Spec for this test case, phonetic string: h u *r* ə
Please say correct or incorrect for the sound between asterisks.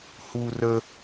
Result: correct